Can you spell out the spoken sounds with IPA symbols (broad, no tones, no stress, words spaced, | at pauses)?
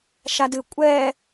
ʃadɨ kʷʼɛ